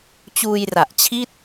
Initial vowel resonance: oral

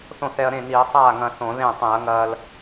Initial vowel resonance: nasal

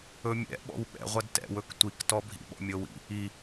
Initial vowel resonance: oral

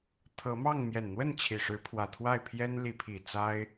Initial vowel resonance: oral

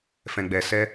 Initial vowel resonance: nasal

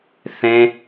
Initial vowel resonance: nasal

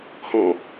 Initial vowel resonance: nasal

